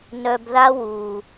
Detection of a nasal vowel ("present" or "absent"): absent